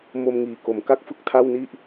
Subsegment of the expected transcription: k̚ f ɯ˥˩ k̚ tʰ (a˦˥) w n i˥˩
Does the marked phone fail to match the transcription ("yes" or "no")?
yes